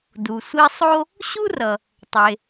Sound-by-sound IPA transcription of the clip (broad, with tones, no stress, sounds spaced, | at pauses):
d u˩ sʷ i˦ sˤ o˥ | ɕ u˥ r ʌ˩ | tˤ e˩